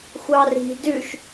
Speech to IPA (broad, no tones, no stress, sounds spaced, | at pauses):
xʷ ɑ r i̤ d ʉ ʃ